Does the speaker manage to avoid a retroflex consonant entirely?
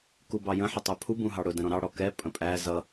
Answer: no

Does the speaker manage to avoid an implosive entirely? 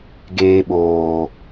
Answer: no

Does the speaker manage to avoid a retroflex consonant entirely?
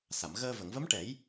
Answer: no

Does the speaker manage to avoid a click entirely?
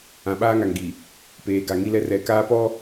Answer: yes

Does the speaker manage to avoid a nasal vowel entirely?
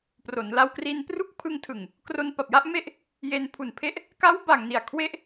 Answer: yes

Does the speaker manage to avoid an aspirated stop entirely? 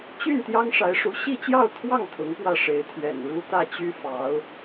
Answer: no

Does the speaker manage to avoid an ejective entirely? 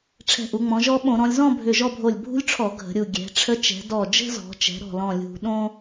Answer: yes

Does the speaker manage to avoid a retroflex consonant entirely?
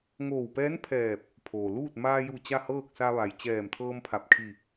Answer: yes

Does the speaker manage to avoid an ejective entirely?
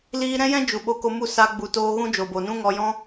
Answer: yes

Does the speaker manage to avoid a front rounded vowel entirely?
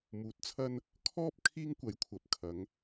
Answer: yes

